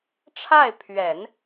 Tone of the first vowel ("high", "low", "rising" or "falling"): falling